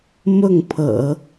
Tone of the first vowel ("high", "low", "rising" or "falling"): falling